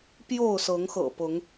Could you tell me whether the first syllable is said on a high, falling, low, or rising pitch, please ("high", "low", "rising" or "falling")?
falling